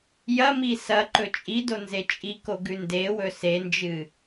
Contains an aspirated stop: no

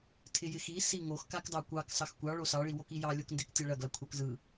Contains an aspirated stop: yes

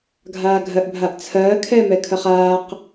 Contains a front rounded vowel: no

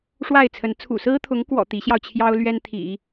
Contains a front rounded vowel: no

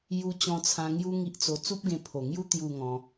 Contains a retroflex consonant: no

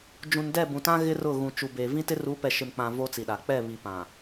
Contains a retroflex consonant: no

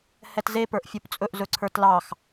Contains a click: yes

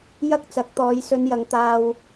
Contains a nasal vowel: no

